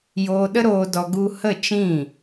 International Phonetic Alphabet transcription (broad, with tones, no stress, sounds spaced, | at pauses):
j oː˧ ɗ ə˦ ɾ oː˧ d ɔ˧ ɡ u˦ h ə˦˨ t͡ʃ ĩ˦˨